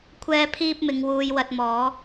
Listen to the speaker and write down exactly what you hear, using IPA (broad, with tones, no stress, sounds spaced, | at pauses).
kʷʰ ɛː˥ pʰ iː˥ p̚ m ɪ˨˧ ŋ w uː˧ j w ɐ˧ t̚ m ɔː˨˥